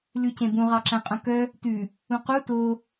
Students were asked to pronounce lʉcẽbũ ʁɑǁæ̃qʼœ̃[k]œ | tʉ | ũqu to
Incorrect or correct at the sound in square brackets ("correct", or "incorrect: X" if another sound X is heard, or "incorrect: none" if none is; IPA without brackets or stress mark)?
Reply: correct